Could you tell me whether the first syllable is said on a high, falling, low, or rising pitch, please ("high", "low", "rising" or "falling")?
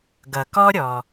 low